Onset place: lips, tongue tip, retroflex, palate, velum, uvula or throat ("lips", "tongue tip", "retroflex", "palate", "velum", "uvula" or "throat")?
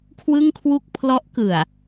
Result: velum